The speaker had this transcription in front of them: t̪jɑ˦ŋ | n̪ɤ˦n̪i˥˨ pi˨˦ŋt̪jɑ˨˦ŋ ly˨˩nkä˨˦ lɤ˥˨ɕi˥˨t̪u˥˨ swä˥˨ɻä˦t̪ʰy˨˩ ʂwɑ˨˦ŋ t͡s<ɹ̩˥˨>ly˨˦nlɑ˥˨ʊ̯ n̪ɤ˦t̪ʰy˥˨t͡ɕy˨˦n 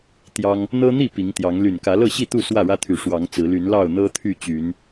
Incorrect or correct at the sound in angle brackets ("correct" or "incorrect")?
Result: incorrect